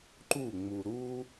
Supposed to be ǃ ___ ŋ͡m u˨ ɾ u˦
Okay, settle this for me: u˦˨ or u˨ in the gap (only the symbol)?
u˦˨